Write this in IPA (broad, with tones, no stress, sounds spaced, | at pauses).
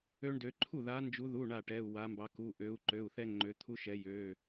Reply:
ø˦ ɳ d ø˨˦ ǃʰ u˥˩ ð a˨˦ n d͡ʒ u˨˦ ð u˩˧˩ ɳ a˥˩ ʈ ɛ˩˧˩ u̯ w a˨˦ m b ɑ˨˦ k u˩˧˩ ʔ ø˨˦ u̯ ǃ ø˩˧˩ u̯ θ ɛ˦ ŋ͡ǃ ø˨˦ t̪ʰ u˦ ʃ ɛ˨˦ j ø˩˧˩